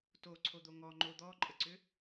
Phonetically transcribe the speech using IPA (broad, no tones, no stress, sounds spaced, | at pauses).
t o ǀʰ o d̪ o ŋ ɔ ŋ͡ǃ o d̪ ɔ ǃʼ ə ǀ ʏ